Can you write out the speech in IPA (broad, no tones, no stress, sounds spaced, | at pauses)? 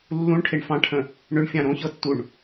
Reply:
lː ũ ɳ ʈʰ e ɳ f ɑ̃ ʈʰ ə̃ | ɳ ʏ ɳ fʲ ɑ̃ ɾ õ ç ɤ tː u ɳ